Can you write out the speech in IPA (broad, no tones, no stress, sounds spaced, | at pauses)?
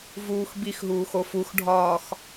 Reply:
v uː x b i x ɦ uː x o f u x ɖʱ ɒː x